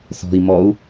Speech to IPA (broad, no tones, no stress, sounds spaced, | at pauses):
θ ɔ̤ i̯ m ɔ u̯